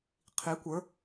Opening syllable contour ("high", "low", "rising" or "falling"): rising